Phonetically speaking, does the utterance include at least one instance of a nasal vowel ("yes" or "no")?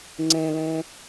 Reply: yes